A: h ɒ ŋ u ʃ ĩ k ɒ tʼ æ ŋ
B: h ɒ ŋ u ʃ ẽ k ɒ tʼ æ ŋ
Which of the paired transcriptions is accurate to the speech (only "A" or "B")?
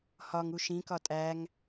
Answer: A